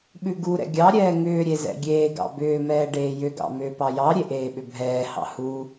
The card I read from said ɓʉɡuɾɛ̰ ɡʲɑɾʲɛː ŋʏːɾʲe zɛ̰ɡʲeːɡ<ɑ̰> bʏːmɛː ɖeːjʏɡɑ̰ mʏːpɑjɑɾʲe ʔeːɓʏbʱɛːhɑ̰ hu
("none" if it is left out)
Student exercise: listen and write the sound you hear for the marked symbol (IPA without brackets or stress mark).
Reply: ɑ̰